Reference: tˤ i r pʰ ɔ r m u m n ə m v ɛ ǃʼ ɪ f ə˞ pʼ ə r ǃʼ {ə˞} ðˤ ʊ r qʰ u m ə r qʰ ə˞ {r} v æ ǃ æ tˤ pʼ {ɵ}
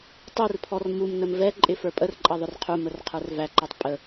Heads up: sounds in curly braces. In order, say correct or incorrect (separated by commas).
incorrect, correct, incorrect